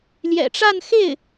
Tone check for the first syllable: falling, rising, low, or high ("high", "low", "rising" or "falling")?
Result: low